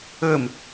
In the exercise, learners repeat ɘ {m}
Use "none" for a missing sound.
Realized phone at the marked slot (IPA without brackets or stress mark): m